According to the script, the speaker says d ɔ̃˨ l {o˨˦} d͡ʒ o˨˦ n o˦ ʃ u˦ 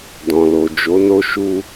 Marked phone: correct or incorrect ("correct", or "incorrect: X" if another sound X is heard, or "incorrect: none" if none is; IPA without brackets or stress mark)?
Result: incorrect: o˨